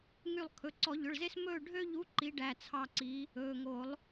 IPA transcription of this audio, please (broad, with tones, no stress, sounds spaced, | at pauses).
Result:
ŋ y˦˨ lˠ kʰ ɵ˩˧˩ ǀ ɔ˨˩˦ ʎ ɵ˩˧˩ ɭ z e˦ s m ɵː˦˨ ɖʱ ø˦ ʎ u˨˥ ǃ i˨˥ ɖ æ˩˧˩ t͡sʰ ɑ˦˨ ǀ i˨˥ | ɵː˩˧˩ ŋ o˨˩˦ lˠ